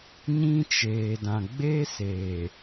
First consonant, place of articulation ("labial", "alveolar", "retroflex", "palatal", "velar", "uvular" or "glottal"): palatal